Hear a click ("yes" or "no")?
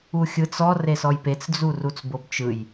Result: no